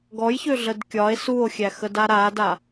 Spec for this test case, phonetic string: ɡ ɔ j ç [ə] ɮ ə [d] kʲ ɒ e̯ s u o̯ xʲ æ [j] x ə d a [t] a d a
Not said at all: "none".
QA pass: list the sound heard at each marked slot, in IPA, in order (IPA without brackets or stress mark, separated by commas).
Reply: ø, d, none, ɾ